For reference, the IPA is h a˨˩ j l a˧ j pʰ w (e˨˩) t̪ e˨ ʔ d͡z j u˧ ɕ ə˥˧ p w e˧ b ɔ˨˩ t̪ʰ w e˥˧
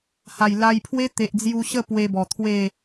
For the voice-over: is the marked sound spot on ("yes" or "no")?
no